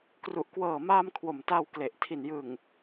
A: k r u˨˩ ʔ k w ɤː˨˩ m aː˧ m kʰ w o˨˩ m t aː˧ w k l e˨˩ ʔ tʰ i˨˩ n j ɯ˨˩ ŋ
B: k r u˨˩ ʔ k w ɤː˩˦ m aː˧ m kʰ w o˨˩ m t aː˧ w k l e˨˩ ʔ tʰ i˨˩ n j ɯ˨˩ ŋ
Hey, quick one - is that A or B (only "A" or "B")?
A